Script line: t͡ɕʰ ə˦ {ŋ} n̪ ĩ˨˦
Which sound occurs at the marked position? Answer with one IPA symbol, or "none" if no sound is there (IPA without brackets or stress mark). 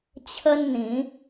n